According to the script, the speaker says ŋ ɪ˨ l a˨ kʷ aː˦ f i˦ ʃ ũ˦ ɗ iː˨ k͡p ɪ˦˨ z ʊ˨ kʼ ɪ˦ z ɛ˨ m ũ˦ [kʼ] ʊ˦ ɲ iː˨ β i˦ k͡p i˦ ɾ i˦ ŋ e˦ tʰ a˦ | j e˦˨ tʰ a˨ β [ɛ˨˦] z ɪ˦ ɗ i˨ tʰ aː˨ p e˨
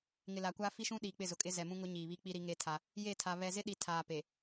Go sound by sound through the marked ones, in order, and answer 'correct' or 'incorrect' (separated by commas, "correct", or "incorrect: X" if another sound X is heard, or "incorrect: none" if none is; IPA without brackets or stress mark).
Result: incorrect: ŋ, incorrect: ɛ˨